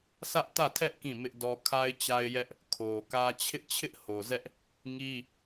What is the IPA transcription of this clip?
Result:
s ä˦ ʔ t ä˦˨ tʰ ɛ˦ ʔ k ĩ˦˨ m ɪ˦ ʔ d ɔ˦ kʰ a˦ ɪ̯ t͡ɕ a˦ ɪ̯ j ɛ˦ ʔ | kʰ o˨ k ä˦ t͡ɕʰ ɪ˦ ʔ t͡ɕʰ ɪ˦ ʔ h o˨ z ɛ˦ ʔ | ŋ i˦

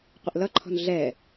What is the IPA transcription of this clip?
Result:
qʷ ə ʔ l ʌ ǃʰ ɔ̤ n ɮ ɛ

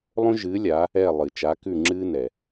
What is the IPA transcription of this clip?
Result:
lˠ õ˦ ʒ ɨː˨˦ lʲ a˨˦ | ɛ˦˨ lˠ ɨ˩ t͡ʃ a˨˦ k ʉ˦˨ ŋ͡ǁ ɨː˦ n ɛ˩

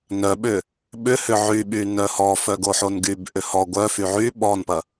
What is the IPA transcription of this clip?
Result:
n œ ɓ ʏ | ɓ ʏ h ʏ ʕ y ɓ y n œ h ɔ f œ ɡ o ħ o n ɡ y b ʔ ʏ h ɔ ɡʷ œ f y ʕ y ɓ ɔ n p ɐ

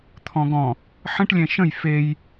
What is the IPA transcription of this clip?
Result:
t̪ʰ ɔ̃ ɡ ɔ̃ | ħ ə̃ ʈ lʲ ɛ̃ ʃ ə̃ j f e j

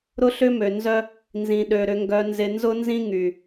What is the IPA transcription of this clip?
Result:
ɾ ʊ˦ ɬ ʏ˦ m ø˨ n z œ˦ | n z ĩ˨ ɗ ø˨ ɾ ʏ˨ ŋ ɡ œ˨ n z ɪ˨ n z ʊ˦ n z ĩ˦ ŋ y˨

